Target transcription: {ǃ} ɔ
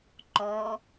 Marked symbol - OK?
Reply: yes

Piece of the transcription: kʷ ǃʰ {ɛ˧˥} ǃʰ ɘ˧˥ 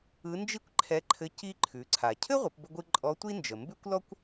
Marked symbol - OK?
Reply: yes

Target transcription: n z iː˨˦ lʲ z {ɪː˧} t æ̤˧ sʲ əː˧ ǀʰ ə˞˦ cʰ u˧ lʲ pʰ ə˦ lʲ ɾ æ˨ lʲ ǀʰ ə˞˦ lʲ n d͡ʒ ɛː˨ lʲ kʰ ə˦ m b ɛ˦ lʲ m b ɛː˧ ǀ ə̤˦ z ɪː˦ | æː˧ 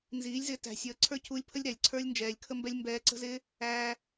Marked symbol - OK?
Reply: yes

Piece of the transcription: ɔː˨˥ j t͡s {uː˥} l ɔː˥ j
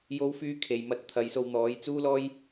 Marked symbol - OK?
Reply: yes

